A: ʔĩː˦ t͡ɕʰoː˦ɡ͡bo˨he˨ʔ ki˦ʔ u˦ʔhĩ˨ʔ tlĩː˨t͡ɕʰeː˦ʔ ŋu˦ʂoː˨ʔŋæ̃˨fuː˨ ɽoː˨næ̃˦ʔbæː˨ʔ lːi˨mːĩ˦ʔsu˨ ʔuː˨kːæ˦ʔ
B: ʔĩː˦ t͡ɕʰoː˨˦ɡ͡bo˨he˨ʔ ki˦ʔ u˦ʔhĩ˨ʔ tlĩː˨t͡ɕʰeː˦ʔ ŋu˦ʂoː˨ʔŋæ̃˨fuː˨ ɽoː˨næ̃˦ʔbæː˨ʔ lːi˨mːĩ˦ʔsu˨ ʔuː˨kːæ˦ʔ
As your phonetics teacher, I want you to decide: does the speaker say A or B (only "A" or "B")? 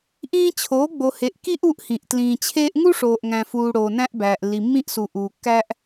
B